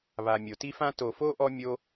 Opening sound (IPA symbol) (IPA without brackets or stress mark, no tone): β